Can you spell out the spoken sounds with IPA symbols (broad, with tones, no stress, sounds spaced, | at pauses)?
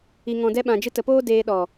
i˨ ŋ ɔ̃˨ d ɛ˧ ɓ ã˨ d͡ʒ ɨ˧ t ə˨ p oː˦ d eː˧ ɗ ɔ˨